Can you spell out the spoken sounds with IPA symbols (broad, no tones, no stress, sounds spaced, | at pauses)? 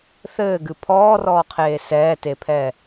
θ ɘː ɡ ɨ pʰ ɔː r ɔː qʰ eː s ɛː t e pʰ ɛː